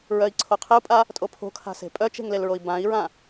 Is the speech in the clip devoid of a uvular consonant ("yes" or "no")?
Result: no